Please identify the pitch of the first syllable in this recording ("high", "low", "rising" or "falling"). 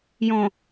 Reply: low